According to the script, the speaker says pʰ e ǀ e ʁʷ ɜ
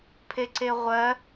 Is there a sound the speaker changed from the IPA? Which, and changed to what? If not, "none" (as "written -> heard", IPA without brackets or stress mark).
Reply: none